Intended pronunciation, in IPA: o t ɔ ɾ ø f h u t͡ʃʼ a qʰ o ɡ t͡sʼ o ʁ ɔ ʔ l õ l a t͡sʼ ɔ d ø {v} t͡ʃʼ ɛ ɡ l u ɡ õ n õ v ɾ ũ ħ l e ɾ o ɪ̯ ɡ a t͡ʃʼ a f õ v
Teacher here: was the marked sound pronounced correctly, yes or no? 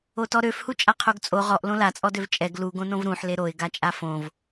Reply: yes